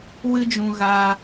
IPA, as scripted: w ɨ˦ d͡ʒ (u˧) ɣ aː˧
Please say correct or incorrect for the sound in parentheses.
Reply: incorrect